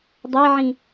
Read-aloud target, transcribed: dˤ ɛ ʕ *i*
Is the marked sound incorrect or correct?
incorrect